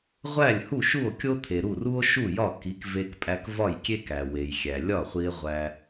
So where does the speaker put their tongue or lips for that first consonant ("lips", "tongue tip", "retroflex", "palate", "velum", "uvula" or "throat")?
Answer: uvula